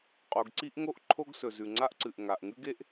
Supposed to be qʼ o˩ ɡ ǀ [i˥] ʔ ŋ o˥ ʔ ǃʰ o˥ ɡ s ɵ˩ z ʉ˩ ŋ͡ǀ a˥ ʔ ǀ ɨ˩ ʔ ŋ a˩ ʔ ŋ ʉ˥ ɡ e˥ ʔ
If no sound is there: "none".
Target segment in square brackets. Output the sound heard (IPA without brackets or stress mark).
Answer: i˥